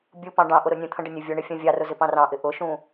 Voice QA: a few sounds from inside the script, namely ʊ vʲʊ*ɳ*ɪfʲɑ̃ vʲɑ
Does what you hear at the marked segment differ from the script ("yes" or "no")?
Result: no